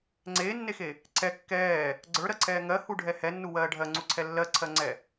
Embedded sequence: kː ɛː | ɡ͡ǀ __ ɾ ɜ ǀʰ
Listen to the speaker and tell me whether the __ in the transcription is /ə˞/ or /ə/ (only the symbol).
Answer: ə˞